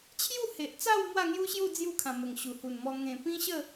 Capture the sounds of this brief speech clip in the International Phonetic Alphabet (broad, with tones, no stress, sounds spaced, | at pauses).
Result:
t͡ɕʰ j u˥˧ h e˨ ʔ t͡s a˥˧ w m w a˥˧ ŋ j u˦ ɕ j u˥˧ d͡z j u˥˧ kʰ ã˨˩ m ə˨˩ ŋ ɕ u˨˩ h u˨˩ n m ɔ˧ ŋ ẽ˨˩ p ĩ˦ ɕ ə˥˧